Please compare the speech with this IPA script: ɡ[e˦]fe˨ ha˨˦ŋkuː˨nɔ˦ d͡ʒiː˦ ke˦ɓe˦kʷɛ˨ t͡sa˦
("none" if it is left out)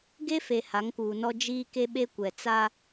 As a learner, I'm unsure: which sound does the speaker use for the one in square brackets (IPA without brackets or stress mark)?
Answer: e˦